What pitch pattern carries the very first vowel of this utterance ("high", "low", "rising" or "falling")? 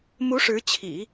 rising